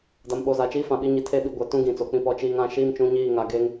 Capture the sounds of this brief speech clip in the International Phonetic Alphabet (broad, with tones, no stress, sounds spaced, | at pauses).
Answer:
d a˨ m ɓ o˨ z a˨ t͡ʃ iː˦ f ã˨ ɓ i˦ ɲ i˨ tʰ e˦ ɓ i˨ ɡʷ ɛ˨ t ũ˦ ɡ ĩ˨ t͡s o˨ k͡p ĩ˦˨ p ɔ˨ t͡ʃ iː˨ ŋ ã˨ ʃ iː˦ m t͡ʃ ũ˨˦ ɲ iː˦˨ ŋ a˨ ɡ e˦ ŋ